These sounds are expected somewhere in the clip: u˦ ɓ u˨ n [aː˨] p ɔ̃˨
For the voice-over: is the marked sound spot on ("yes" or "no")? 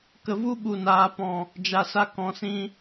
yes